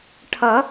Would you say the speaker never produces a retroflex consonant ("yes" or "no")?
no